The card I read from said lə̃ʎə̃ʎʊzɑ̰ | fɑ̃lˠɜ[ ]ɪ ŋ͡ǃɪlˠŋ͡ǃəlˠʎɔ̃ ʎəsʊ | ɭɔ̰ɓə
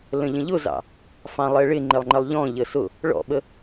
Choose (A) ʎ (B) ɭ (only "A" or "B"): B